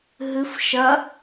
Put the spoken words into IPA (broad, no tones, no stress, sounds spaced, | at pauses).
ɦ ɨ f ʃ ɐ